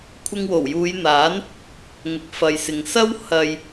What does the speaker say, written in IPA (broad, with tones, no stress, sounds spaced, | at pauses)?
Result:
kʷʰ ɪ˧ ŋ w o˨˩ w j uː˨˧ j n̪ aː˨˥ n | ŋ ʊ˨ k̚ f ɐ˨ j s ɪ˨ ŋ s ɐ˥ w h ɐ˨ j